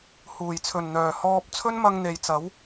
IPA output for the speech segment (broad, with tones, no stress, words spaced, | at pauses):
huː˨˩jt͡sʰɵ˨˩nn̪œː˨˩ hɔː˧p̚ t͡sʰɵ˥nmɐ˧ŋn̪e˨jt͡sɐ˨˥w